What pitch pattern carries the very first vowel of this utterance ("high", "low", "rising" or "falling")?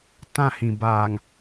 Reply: falling